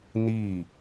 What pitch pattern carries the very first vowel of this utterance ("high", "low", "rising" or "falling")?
falling